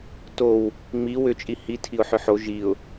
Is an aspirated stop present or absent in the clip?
present